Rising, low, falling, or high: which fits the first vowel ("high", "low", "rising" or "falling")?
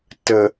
low